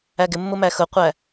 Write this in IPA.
æ ɡ ɪ mː ʊ m æ x ʊ qʷ æ

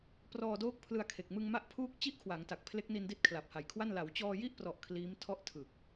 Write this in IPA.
p r ɔː˧ d oː˦˥ k̚ pʰ l ɯ˧ a̯ kʰ e˨˩ k̚ m ɯ˧ ŋ m a˦˥ ʔ pʰ uː˦˥ k̚ t͡ɕ i˥˩ ʔ kʰ w a˩˦ ŋ t a˨˩ k̚ pʰ l e˦˥ k̚ n i˧ n d i˦˥ t̚ kʰ l a˨˩ p̚ h a˨˩ j kʰ w a˥˩ n l a˩˦ w t͡ɕ ɔː˧ j i˥˩ ʔ p r ɔ˨˩ ʔ kʰ l iː˦˥ m tʰ ɔ˥˩ ʔ tʰ ɯ˨˩ k̚

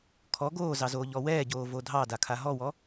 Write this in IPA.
kʰ ɔ ɡ oː z ɑ z oː ʎ ɔ w ɛː ɟ oː v o dʱ ɑ d a kʰ a ɦ ɔ w ɔ

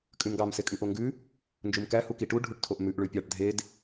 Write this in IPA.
kʼ ʉ m ɡ ɑ m s e kʼ ʉ ʔ o ŋ ɡ ʉ | n d͡ʒ u m k æ h u k i ʈ u ɖʱ u ʈ tʰ o ʔ m ʉ ʔ ɭ ʉ pʲ ɑ ʈ dʱ e d

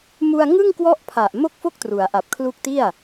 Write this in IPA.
m u˧ a̯ ŋ ɯ˥˩ ŋ k w ɔ˦˥ ʔ pʰ a˨˩ ʔ m o˥˩ k̚ f o˥˩ k̚ t r u˩˦ a̯ ʔ a˨˩ p̚ kʰ l u˦˥ k̚ t i˥˩ a̯

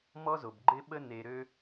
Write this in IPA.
m ɔ˦ z o˩ b ɡ͡ǃ ɪ˦ ɓ ə˦ n e˨ ɾ ø˦

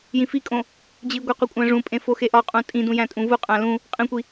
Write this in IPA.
j ĩ f i kʼ õ | d͡ʑ i ɡʷ e qʷ i kʷʼ æ̃ ʐ ũ pʼ ẽ f o x e ʔ ɒ qʼ ũ tʼ ĩ d ũ j æ̃ tʼ ũ v u qʼ æ̃ l ũ | qʼ ĩ kʷ i

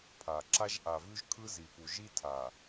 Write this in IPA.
pʰ a˨ ǁ a˦ ʒ ʔ a˨ v ʉ˦ ʒ kʰ ɯ˦ z i˨ p u˨ ʒ i˦ tʰ a˨

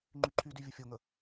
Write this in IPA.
ŋ͡ǃ y ǃʰ y d y vʲ ə fʲ o ŋ ə

